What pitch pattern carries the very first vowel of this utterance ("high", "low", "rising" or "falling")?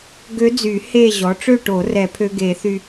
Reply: rising